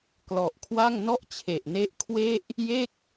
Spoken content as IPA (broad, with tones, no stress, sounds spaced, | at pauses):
k l ɔ˨˩ ʔ kʰ w a˥˩ ŋ n ɔ˥˩ ʔ t͡ɕʰ e˨˩ ʔ n e˦˥ ʔ kʰ w e˥˩ ʔ | j e˥˩ k̚